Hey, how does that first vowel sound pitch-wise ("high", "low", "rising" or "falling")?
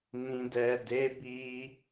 low